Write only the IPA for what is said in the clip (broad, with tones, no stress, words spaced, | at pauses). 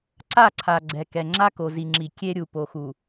ǀa˦˨ǀʰa˨ ɡ͡ǀɛ˨kɛ˨ ŋ͡ǁa˦ko˨zi˨ŋ͡ǁi˨ kʲe˦ ɾʲu˨po˨xu˨